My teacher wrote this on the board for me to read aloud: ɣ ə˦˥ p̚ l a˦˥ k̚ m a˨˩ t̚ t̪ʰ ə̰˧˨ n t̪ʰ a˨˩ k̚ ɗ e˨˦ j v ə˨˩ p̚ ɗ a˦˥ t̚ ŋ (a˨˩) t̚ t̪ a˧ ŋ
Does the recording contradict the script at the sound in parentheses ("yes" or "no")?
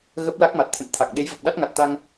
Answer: no